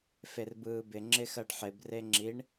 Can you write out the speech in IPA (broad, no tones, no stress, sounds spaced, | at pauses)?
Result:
f e r b ɯː b ɪ ŋ͡ǁ ɪ x ɜ ɖ ħ ɪ b r e ŋ͡ǁ i ɳ